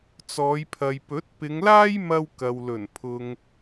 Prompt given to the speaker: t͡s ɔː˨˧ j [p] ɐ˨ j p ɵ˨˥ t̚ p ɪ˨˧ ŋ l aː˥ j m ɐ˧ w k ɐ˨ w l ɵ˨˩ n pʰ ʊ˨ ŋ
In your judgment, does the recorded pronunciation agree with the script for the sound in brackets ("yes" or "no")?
no